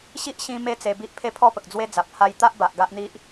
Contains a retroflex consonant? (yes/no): no